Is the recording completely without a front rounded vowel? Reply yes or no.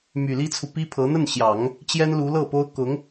no